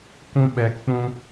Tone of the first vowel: high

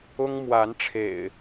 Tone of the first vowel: high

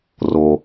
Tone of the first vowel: low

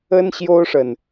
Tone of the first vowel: high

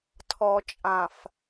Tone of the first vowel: low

